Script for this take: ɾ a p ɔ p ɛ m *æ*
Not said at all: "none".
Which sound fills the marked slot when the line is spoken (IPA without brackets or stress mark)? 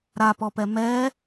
ɛ